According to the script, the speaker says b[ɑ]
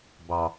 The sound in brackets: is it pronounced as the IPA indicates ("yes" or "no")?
yes